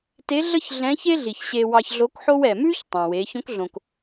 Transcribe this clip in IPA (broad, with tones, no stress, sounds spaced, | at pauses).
t e˧˥ ɮ ə˥ ç ɮ ɛ̃˧˥ ç e˥ ɮ i˩ ç ɕ e˧ w ɑ˧ ç ɮ o˧˥ k ħ o˥ w ɛ˩ m ʉ˥ ç tˤ ɑ̃˩ w e˩˧ ç õ˧˥ k ɮ õ˩ k